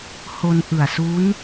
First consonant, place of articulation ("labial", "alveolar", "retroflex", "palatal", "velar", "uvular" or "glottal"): glottal